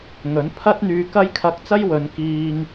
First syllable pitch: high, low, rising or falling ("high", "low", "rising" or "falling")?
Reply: rising